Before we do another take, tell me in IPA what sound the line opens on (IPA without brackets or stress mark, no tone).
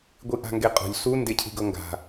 ɡʷ